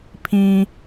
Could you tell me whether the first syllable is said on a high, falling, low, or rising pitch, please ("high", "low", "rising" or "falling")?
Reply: low